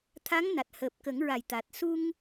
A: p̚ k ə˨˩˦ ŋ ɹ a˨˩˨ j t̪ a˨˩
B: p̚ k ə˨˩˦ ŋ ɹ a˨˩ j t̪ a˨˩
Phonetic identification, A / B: B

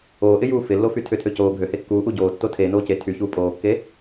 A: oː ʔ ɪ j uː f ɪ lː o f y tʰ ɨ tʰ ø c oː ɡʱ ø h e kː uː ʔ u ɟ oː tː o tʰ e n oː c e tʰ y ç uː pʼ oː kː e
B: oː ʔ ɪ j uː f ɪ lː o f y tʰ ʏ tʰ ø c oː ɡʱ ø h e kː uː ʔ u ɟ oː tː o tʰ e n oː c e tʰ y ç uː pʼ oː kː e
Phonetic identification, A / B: B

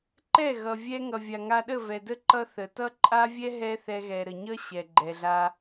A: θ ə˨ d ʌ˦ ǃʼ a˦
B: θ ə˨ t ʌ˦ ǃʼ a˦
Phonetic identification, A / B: B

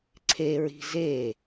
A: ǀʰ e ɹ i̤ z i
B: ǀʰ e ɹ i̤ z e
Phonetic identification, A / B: B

